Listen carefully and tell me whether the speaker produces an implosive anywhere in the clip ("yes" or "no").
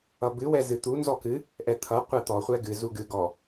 no